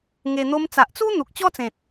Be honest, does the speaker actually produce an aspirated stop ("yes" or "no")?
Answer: no